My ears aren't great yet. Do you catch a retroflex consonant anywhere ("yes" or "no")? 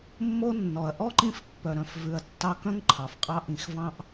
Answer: no